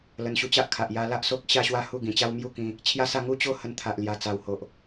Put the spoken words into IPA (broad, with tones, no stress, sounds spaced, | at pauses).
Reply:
l ə˧ n ɕ u˧ t͡ɕ a˦ ʔ kʰ a˨ ʔ j a˧ l a˦ ʔ s o˦ k̚ ɕ a˥˧ ɕ w a˥˧ h u˥˧ ɡ ĩ˨˩ t͡ɕ a˦ w m j u˥˧ k ĩ˧ | t͡ɕʰ j a˦ s a˥˧ ŋ u˥˧ t͡ɕ o˦ h ə˧ n t̪ʰ a˨ ʔ l j a˨˩ t͡s a˨˩ w h o˨ ʔ